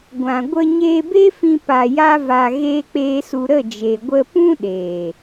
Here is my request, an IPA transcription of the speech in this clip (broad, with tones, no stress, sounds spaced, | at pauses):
ɡʷ ã˨ ɡʷ ə˧ ɲ eː˧ b e˦ f ĩ˧ p a˧ j a˦ v a˧ ɣ eː˦ k͡p eː˦ s u˧ ɾ ə˦˨ d͡ʒ e˨ ɡʷ ə˧ p ũ˦ ɗ eː˨